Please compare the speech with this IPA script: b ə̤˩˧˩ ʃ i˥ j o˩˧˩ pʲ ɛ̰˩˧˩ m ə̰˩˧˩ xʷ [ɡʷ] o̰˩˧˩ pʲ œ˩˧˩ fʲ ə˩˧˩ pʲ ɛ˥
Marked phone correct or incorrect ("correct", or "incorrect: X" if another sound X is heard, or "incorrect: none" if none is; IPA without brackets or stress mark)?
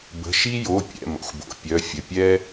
incorrect: b